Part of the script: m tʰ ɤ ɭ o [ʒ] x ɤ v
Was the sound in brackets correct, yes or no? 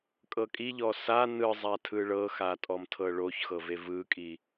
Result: no